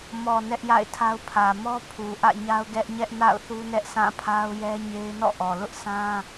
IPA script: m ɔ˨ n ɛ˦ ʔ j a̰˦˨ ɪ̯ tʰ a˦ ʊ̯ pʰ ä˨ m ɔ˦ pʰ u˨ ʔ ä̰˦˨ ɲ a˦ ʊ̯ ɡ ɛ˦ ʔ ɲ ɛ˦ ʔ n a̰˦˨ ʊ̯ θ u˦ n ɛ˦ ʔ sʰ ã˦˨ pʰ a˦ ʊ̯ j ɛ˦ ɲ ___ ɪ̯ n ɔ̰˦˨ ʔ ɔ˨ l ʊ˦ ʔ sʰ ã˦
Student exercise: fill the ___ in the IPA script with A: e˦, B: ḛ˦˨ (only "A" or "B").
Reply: A